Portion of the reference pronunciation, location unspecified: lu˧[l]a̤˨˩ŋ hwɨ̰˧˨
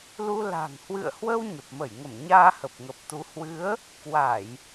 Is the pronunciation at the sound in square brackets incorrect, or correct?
correct